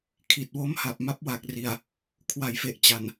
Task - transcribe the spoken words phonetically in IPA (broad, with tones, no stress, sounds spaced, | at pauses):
kʰ i˨˩ t̚ w o˦˥ m h a˨˩ p̚ m a˦˥ p̚ w a˨˩ k̚ r i˨˩ a̯ | kʰ w a˩˦ j f e˨˩ ʔ t͡ɕ a˨˩ n